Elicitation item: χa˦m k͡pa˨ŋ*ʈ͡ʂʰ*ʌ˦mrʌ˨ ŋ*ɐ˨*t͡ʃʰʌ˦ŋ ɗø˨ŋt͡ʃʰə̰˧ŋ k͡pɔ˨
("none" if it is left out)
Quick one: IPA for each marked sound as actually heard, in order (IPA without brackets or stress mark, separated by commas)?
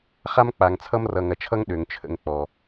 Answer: t͡sʰ, ɐ˨